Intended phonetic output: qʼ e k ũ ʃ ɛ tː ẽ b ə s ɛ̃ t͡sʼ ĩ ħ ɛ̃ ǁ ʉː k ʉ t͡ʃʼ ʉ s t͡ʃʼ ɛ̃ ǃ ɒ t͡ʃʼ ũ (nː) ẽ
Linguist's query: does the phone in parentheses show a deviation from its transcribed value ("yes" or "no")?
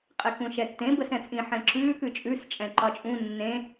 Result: no